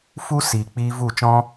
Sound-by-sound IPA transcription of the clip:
fu˦siː˨k͡piː˧ vu˦˨t͡ʃɔ̃˦

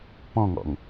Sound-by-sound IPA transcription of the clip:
pɔ̃ŋɔ̰ŋ

